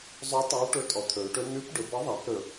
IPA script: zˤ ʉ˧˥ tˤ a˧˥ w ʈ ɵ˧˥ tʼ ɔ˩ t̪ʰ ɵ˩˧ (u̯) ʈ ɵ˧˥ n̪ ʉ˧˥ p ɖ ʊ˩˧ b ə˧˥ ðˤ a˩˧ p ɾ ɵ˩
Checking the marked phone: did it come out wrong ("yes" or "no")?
yes